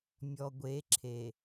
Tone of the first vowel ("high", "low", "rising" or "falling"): low